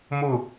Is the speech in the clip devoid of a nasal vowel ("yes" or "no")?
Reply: yes